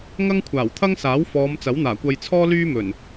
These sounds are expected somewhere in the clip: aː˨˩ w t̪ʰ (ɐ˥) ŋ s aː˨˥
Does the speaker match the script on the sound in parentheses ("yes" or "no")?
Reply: yes